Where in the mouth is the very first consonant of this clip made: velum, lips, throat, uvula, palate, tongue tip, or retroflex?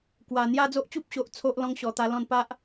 velum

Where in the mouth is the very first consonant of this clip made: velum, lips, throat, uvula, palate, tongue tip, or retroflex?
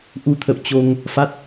throat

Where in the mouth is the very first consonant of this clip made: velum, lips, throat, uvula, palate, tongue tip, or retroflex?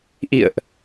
throat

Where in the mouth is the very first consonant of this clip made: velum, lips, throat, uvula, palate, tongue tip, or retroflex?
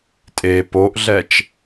tongue tip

